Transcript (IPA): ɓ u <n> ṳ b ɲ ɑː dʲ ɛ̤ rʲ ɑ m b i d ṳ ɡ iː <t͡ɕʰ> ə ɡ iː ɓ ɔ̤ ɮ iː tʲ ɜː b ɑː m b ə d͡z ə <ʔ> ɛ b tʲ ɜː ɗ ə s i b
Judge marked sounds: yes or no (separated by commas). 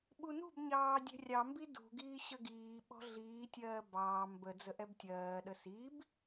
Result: yes, no, yes